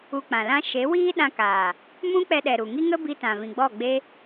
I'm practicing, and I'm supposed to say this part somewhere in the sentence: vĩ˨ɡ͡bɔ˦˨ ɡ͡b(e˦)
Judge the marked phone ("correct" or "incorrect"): correct